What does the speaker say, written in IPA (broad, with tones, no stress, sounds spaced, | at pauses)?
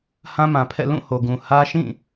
h ã˦ m ã˨ pʰ ɛ̰˦˨ l ũ˦˨ h o˨ ɡ ũ˨ h ä˦ ʃ ĩ˦˨